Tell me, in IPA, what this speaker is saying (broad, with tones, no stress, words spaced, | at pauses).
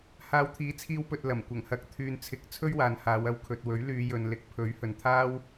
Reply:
haː˨˧wt̪ʰiː˨˥t͡sʰiː˧wpɵ˨t̚ lɐ˨˩mkʷɐ˨˩ŋ hɐ˨k̚t̪ʰyː˨nt͡sʰɪ˨˥k̚ t͡sʰɵ˥ɥwaː˨nhaː˨˧wɐ˧w kʰɵ˨t̚wɵ˨˥ɥ lyː˨˧jɵ˨n lɪ˨˥k̚pʰɵ˨˥ɥhɵ˨n t̪ʰaː˥w